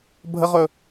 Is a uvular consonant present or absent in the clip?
present